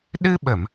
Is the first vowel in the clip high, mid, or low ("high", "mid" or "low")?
high